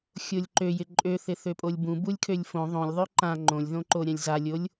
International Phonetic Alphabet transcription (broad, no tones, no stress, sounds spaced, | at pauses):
xʲ o lʲ ǃ ø j ɪ ǃʼ ø θ ɪ θ ø pʼ o lʲ b ũ b u lʲ kʰ ø lʲ f õ ðˤ õ lʲ ðˤ ø ǃ ã ŋ͡ǃ õ lʲ ð õ ǃ o ɾʲ ã lʲ z a lʲ o lʲ